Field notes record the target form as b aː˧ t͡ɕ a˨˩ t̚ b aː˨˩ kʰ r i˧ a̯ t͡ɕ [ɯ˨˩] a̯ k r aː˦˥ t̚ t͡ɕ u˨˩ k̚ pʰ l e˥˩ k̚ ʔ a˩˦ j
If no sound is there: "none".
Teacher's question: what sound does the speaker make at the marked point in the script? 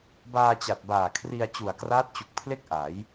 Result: u˨˩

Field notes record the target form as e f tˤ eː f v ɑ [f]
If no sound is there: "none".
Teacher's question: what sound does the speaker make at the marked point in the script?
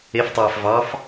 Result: f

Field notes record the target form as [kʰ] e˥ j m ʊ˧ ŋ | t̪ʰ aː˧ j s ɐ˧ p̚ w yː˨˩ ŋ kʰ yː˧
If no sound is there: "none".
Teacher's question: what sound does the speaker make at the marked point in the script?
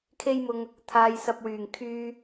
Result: kʰ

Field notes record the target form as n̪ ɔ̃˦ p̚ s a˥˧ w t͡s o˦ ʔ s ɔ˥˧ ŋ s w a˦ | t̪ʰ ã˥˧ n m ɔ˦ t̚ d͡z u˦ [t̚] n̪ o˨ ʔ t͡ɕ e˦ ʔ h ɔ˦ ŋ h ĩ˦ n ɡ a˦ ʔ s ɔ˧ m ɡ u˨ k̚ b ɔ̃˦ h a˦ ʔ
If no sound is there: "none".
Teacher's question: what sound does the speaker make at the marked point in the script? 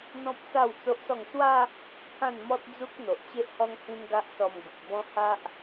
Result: k̚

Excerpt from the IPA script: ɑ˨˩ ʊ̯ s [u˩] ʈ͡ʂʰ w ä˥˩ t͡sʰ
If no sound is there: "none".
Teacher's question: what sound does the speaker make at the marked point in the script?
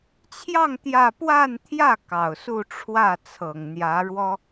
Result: u˥˧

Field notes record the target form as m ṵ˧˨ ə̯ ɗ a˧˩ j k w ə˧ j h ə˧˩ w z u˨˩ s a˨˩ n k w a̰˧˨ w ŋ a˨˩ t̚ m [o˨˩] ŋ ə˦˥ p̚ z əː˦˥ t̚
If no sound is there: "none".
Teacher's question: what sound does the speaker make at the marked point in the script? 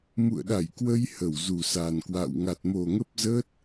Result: o˨˩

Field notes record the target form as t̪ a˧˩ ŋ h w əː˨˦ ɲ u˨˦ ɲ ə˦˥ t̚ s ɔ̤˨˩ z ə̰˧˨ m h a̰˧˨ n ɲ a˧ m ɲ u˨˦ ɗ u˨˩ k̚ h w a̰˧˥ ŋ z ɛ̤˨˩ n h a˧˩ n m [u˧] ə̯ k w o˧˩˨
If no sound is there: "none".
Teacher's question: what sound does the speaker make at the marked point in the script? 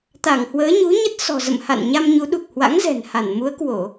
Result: u˨˦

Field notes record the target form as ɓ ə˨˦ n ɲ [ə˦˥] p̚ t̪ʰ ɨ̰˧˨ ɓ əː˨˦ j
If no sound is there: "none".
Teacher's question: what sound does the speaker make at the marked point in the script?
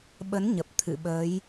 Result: ə˨˩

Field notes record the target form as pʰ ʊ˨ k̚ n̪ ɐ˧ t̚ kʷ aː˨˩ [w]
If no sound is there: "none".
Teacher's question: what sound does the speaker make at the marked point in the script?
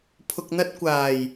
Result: j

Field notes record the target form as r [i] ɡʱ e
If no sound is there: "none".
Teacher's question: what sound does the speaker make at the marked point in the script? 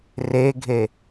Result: e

